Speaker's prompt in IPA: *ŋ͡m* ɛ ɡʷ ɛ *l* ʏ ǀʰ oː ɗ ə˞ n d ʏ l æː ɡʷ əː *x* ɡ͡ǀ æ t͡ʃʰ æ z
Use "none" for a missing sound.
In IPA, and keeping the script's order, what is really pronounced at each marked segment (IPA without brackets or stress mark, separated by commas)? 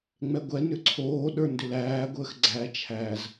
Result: ŋ͡m, n, x